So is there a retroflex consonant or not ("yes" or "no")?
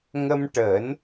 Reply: yes